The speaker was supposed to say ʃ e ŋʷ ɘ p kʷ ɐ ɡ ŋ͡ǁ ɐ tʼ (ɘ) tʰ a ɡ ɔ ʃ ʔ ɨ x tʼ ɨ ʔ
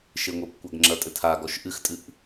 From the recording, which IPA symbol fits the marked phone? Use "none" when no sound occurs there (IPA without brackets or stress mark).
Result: ɘ